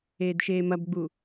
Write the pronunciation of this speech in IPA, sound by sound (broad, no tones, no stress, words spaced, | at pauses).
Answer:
eːdʃeːmɐbɡ͡bu